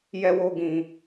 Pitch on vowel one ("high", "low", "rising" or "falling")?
high